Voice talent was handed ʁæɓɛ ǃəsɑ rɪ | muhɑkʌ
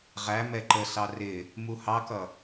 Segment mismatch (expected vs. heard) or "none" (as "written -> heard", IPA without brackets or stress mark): ɓ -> m